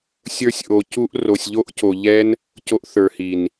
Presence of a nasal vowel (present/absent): absent